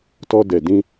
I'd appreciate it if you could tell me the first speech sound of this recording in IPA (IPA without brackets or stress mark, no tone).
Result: t